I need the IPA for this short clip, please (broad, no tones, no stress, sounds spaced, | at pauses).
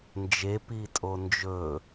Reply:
n d͡ʒ e p i tʼ o n d͡ʒ ɵ